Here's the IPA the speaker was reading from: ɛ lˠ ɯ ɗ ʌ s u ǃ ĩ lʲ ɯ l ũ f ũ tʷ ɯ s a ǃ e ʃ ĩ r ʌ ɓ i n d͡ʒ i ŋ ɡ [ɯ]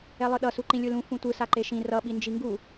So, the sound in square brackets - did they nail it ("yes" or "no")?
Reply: no